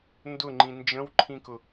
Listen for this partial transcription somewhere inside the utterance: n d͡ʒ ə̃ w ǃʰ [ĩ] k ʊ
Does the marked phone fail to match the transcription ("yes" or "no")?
no